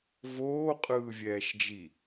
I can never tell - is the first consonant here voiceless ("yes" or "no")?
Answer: no